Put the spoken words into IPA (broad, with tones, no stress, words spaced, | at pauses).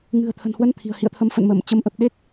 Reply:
ŋɨ̤˨˩ə̯t̪ʰə̤˨˩nhwə˨˦n t̪ʰi̤˨˩ə̯hḭ˧˨ə̯t̪ʰə˨˦m fə̰˧˨nmə˧˩m t͡ɕə˨˦mʔə˨˩p̚ ɗe˦˥k̚